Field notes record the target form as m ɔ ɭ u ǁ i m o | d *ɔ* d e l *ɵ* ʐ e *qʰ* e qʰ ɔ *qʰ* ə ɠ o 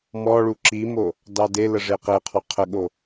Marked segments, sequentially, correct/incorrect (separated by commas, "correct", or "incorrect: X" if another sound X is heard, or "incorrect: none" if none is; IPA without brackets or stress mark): incorrect: ɑ, incorrect: ə, incorrect: q, correct